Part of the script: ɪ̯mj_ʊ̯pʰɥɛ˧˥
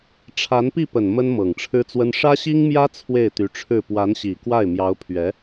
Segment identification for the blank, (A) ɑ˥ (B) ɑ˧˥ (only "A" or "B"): B